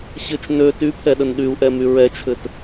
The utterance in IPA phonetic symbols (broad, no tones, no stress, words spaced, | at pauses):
ɕɘt͡ʃ nø typʰɛɗən ɗyu̯ʔɛmy ɹɛt͡ʃʰɘt